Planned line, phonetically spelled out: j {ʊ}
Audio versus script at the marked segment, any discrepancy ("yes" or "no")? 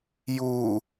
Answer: yes